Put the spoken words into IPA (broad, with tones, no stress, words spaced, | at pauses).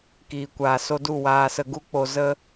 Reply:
kiː˨kʷaː˨so˧du˦˨ waː˧sə˧ɡu˦k͡po˧ zə˦